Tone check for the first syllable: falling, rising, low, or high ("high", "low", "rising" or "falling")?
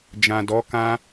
low